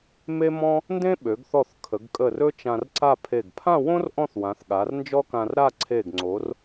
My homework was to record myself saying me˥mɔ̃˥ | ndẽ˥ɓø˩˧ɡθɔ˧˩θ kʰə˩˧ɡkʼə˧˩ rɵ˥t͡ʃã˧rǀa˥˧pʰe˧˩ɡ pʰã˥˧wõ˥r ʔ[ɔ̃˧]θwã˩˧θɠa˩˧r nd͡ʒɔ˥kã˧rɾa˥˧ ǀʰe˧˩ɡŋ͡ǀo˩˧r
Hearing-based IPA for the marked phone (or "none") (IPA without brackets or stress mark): ɔ̃˥˧